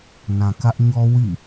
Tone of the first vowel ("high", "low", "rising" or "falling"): low